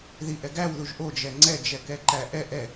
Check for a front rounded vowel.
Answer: absent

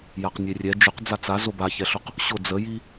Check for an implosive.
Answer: absent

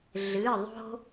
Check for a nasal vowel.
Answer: absent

